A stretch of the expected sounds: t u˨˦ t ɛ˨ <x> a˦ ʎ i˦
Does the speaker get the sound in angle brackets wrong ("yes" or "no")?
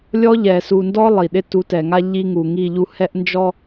yes